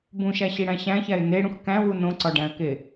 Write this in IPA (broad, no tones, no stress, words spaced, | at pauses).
bũʃæɕiɽæ̃ ɕæ̃çæɪ̯ neɽũx kæ̃wu nõǀɒɖæ̃ə̯ke